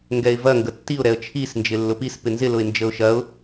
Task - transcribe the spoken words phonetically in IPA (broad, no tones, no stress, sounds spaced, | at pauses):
ŋ ɡ ɛ ɪ̯ v ɐ ŋ ɡ ə tː i ʊ̯ ɾ ɛ ə̯ t͡ʃʰ i s n d͡ʒ ɪ lː ʊ p i s p ɪ n z ɪ l ʊ ɪ̯ n d͡ʒ ə ʊ̯ ʃ ɐ ʊ̯